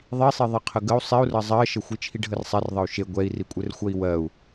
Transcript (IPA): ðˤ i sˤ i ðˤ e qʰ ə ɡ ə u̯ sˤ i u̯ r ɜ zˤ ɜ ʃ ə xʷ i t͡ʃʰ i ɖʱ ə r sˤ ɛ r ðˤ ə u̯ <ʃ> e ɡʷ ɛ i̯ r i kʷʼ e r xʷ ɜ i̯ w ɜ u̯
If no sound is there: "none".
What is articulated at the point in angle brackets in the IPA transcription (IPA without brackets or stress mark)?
ʃ